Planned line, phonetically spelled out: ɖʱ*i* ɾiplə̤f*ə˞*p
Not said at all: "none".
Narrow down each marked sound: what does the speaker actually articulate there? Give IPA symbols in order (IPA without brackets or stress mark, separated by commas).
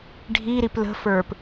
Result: i, ə˞